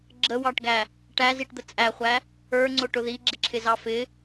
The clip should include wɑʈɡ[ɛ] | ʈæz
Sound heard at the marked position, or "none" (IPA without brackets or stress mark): æ